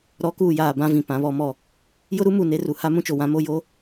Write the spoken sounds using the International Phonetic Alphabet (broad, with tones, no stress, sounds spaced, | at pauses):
ɾ ɔ˨˦ k uː˨ j aː˨ b ã˦ v ĩ˨ p ã˨˦ β ɔ˨˦ m ɔ˦˨ | j ʊ˦ ɾ u˦ m u˨ n e˦ r u˨ h a˦ m ũ˦ t͡ʃ o˨ w ã˦ m o˦ j o˦